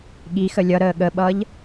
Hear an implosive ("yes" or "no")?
yes